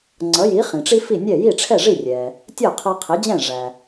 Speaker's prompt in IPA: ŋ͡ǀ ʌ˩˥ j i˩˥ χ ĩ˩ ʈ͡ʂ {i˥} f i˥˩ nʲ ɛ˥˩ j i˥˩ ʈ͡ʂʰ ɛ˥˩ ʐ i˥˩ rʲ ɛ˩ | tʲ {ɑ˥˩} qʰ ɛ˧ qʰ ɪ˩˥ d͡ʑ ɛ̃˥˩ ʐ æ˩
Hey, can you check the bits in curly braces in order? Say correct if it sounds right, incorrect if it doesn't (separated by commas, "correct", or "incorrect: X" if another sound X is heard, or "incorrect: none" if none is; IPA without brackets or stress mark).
correct, incorrect: ʌ˥˩